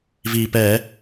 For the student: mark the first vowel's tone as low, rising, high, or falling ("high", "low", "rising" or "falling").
low